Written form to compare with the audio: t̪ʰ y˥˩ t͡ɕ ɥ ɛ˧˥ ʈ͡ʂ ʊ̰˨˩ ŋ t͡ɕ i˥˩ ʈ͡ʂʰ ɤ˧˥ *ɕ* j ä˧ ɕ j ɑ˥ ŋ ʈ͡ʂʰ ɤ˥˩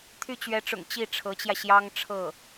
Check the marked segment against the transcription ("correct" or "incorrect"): incorrect